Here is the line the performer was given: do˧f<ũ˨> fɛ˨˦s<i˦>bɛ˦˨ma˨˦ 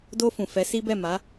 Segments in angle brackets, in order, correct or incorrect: correct, correct

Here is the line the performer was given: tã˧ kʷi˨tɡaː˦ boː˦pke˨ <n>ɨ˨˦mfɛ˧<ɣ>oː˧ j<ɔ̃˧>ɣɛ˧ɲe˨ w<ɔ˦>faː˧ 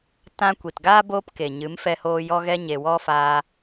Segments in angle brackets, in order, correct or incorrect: incorrect, incorrect, incorrect, correct

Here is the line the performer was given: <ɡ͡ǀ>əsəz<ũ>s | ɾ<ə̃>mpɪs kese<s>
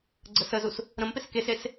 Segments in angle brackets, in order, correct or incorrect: correct, incorrect, correct, correct

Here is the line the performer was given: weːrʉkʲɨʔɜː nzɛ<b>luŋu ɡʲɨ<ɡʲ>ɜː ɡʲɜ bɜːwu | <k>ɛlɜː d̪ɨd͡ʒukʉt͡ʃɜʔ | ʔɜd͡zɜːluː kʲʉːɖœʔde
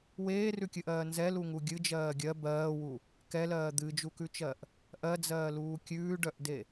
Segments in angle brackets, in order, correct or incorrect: incorrect, incorrect, correct

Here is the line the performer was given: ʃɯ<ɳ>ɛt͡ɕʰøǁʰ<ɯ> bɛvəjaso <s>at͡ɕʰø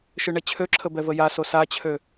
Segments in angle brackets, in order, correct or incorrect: correct, incorrect, correct

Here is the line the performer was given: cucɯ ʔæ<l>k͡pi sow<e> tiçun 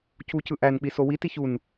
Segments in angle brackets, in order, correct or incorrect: incorrect, incorrect

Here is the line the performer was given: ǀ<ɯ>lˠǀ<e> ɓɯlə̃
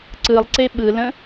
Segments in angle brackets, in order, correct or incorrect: correct, correct

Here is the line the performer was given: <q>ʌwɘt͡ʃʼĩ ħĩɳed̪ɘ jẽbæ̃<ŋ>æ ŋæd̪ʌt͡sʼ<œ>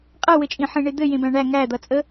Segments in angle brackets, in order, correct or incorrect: incorrect, incorrect, incorrect

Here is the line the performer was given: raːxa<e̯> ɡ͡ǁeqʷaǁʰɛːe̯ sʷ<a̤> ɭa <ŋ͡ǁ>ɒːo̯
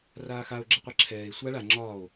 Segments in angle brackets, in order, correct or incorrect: incorrect, incorrect, correct

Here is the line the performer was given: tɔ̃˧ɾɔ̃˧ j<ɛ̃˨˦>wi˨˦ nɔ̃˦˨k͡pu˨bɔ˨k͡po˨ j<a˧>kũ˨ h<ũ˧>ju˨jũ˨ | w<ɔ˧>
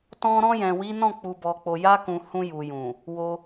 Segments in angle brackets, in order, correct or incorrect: incorrect, correct, correct, incorrect

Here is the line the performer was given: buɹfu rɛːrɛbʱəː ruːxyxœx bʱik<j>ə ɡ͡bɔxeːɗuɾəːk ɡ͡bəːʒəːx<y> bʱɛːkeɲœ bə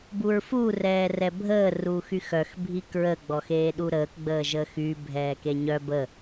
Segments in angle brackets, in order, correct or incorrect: incorrect, correct

